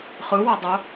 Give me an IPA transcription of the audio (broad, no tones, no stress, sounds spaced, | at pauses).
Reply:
χ ɯ w a dˤ o